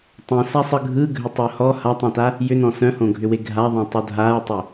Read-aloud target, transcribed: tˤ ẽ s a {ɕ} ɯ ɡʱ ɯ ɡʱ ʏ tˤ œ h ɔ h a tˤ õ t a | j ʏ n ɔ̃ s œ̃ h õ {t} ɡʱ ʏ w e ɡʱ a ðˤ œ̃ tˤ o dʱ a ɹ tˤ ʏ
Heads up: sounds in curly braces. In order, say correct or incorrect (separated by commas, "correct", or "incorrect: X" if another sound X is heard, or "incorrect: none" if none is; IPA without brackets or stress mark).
incorrect: sˤ, incorrect: none